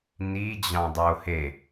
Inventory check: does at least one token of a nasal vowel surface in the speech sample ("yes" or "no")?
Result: yes